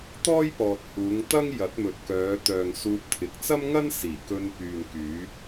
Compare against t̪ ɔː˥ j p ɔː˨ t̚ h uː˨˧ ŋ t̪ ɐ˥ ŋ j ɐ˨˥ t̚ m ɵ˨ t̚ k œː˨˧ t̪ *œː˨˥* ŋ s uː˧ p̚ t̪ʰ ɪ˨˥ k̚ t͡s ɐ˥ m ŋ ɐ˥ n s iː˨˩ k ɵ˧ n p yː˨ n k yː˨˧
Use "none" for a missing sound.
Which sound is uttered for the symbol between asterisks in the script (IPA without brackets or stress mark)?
œː˨